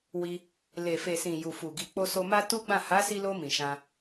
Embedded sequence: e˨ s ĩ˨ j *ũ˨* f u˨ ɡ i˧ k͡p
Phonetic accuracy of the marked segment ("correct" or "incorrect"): incorrect